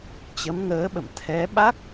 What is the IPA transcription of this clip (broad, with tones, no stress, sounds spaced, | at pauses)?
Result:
t͡ɕ ə˨˦ m ŋ əː˨˦ ɓ ə̰˧˨ m t̪ʰ ɛ˨˦ ɓ a˦˥ k̚